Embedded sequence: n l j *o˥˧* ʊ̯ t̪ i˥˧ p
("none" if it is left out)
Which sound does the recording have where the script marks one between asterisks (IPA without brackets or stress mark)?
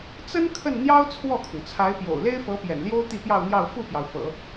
o˥